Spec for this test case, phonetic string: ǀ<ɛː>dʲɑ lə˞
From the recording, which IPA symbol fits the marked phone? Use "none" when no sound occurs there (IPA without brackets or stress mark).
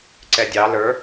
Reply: ɛ